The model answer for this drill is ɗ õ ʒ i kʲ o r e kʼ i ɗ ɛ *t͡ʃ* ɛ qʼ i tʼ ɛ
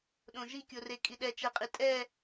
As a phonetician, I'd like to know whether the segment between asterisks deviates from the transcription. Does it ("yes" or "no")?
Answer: no